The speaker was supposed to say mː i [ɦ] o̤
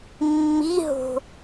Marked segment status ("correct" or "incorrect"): correct